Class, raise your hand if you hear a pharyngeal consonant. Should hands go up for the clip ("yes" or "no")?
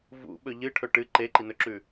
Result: no